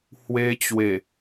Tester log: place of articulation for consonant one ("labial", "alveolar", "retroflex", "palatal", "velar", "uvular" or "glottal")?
glottal